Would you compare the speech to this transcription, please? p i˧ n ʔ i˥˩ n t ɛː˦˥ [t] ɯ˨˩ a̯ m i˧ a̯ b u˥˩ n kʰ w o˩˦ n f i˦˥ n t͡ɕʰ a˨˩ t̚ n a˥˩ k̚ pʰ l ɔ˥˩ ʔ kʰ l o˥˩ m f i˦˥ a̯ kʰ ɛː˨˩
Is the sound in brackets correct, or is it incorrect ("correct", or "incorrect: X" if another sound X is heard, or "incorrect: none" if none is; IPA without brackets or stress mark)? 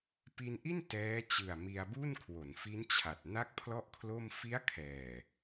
incorrect: t͡ɕ